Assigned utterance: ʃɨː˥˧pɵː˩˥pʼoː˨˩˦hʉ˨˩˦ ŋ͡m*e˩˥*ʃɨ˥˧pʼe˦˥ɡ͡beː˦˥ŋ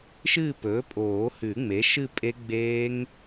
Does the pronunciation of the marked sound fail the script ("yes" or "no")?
no